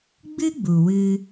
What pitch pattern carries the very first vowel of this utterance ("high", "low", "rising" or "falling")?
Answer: high